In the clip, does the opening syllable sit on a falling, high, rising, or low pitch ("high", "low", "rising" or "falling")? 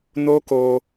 high